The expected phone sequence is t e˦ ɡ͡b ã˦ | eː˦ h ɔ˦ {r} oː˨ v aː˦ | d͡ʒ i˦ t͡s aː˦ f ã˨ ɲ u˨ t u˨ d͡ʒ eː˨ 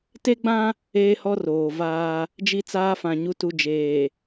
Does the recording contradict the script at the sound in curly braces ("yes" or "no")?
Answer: no